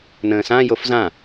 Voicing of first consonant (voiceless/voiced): voiced